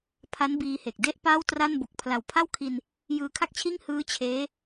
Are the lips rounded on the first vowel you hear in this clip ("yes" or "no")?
no